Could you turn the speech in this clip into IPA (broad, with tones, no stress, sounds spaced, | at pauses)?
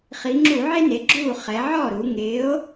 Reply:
χ i˩˧ ŋ͡ǁ u˧˩˧ ʕ e˦ n e˩˧ ɡ͡ǁ u˥˩ χ ɛ˩˧ ʕ ɔ˥˩ ɾ u˩˧ ŋ ɪː˨˥ o̯